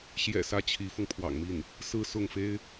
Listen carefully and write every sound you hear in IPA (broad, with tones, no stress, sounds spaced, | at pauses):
ɕ j ɛ̰˨˩ s ä˧˥ t͡ɕʰ i˧˥ f ɤ˧ ŋ pʰ w ɑ̰˨˩ ŋ m i˥˩ n | s ɹ̩˥˧ s ʊ˥˩ ŋ f e˥ ɪ̯